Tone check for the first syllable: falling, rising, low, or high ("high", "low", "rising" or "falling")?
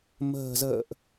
low